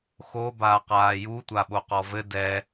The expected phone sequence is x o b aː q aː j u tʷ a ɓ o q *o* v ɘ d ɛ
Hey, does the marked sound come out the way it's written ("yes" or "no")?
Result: no